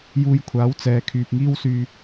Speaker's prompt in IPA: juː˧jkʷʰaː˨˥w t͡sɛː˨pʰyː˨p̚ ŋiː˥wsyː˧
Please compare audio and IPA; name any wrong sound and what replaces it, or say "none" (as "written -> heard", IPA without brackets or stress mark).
pʰ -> kʰ